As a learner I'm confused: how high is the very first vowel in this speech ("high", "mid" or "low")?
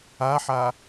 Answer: low